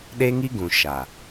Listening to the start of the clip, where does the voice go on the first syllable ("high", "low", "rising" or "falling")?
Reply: high